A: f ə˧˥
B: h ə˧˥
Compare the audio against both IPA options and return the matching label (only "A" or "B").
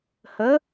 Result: B